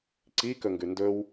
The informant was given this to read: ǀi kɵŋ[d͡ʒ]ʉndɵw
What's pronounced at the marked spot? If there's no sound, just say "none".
ɡ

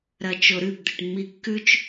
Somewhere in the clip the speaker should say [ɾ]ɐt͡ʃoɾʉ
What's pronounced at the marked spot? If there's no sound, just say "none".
ɾ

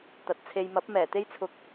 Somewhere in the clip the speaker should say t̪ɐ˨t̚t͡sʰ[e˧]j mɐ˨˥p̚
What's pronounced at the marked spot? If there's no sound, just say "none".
e˧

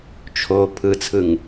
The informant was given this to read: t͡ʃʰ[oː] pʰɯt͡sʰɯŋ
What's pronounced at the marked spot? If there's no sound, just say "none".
oː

